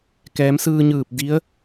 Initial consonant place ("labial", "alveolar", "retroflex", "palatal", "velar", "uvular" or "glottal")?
velar